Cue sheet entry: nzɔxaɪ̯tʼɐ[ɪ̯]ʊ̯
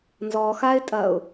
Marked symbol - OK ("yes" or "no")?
no